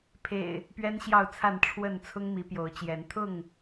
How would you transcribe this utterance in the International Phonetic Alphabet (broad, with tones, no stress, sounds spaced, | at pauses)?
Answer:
pʰ ḛ˨˩ ɪ̯ | p ɥ ɛ˦ n ɕ j ɑ˥˨ ʊ̯ t͡sʰ a˥˨ n ʈ͡ʂʰ w ə˥˨ n t͡sʰ ʊ˦ ŋ m i˨˦ p j o˨˦ ʊ̯ t͡ɕ j ɛ˨˦ n t̪ʰ ʊ˥˨ ŋ